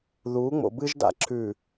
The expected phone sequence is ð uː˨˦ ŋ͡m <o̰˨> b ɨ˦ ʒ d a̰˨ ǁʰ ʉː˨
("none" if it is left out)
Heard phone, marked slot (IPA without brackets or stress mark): o̰˨